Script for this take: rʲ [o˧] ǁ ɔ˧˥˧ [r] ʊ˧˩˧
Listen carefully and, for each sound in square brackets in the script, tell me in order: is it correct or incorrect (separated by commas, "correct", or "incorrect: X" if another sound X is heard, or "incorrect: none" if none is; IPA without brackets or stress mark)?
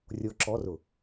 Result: correct, correct